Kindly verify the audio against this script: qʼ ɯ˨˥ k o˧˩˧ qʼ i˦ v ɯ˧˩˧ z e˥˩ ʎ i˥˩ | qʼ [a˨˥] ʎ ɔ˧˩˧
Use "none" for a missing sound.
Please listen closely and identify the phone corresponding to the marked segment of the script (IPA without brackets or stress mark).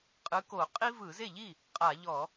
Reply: a˧˩˧